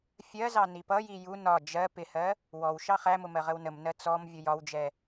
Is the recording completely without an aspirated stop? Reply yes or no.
yes